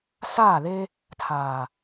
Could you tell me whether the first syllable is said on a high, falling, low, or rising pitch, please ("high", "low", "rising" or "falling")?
falling